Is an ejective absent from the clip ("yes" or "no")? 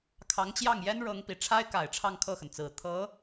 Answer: yes